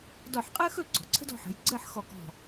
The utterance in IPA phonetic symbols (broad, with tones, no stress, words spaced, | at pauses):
dɔ˧˩ħqʼəː˥xɵ˥˧ ɡ͡ǀɔ̤˩˧ǀʰə̤˥d ɔ̤˧ħə̤˩˧j ɡ͡ǀəː˥˧ħxɔ˧˩kɔ̤˧˩